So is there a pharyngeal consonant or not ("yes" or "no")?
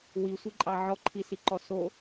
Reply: yes